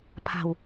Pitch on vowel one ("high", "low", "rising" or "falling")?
low